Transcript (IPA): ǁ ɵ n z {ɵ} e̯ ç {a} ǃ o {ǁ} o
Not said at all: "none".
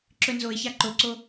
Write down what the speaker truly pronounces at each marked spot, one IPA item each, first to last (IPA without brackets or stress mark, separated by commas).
o, a, ǀ